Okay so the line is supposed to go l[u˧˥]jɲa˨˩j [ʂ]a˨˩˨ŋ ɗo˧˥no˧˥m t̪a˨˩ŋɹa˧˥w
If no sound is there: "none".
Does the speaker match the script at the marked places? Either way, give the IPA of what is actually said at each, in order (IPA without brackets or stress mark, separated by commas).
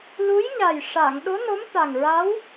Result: u˧˥, ʂ